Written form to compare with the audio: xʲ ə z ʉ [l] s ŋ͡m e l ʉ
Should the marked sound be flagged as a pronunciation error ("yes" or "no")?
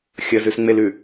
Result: yes